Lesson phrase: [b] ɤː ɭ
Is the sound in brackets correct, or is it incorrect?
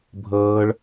incorrect